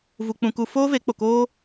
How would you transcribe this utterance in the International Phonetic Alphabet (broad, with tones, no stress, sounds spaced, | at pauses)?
v u˧ k͡p ũ˧ k u˧ f oː˦ v e˨˦ k͡p o˨ k oː˦